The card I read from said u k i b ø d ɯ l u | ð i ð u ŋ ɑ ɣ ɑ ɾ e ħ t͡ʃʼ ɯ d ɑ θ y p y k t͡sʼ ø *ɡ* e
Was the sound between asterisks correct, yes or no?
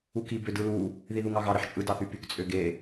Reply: yes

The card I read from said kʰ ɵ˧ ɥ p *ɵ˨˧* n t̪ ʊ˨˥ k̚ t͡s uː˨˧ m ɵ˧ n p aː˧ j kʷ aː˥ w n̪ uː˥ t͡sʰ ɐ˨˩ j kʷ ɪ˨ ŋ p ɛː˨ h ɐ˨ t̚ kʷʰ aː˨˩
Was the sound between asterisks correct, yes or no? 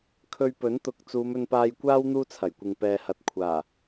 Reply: no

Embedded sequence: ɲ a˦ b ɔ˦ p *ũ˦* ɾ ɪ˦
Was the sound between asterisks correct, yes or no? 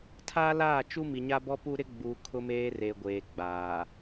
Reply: no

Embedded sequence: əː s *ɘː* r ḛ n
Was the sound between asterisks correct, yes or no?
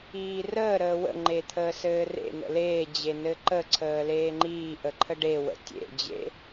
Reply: yes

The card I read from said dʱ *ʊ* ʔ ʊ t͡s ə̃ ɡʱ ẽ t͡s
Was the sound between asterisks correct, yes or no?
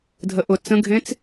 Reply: no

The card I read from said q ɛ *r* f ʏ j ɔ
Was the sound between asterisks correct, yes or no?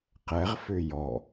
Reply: no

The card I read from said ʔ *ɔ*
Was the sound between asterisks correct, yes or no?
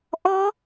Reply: yes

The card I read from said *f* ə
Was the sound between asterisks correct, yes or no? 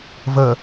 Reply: no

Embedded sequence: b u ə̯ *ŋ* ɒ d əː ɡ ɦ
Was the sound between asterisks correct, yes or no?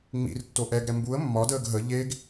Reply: no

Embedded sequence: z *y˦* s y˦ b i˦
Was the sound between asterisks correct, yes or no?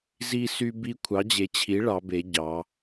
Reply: no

